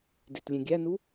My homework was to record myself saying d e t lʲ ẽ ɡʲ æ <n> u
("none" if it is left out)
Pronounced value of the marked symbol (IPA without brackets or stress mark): n